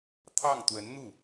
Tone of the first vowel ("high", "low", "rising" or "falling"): falling